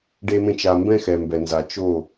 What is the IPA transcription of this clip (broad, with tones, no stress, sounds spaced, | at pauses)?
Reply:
ɖ e˨ m ẽ˨ t͡ʃ a˨ m b ɛ̃˦ x ɛ˨ m b ɛ˨ n z a˨ t͡ʃ o˦˨